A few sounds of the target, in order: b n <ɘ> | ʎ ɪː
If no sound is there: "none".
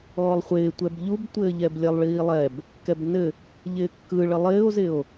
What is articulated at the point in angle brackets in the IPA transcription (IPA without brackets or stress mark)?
ɘ